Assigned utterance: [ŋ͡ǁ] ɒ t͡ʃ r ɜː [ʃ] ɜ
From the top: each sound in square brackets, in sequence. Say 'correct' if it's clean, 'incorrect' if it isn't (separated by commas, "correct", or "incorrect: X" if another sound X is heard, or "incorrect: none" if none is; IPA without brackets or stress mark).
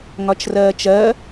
incorrect: ŋ, incorrect: t͡ʃ